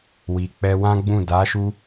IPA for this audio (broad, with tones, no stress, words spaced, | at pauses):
wi˨k͡pɛ˧wã˦ɡ͡bũ˦˨ da˨˦ʃu˧